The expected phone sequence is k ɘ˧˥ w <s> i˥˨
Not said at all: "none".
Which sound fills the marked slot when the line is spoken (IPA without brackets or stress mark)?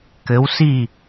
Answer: s